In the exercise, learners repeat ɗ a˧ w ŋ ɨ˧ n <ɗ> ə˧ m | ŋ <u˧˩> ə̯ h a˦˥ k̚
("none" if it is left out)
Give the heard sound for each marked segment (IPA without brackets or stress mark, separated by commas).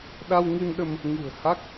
ɗ, ṳ˨˩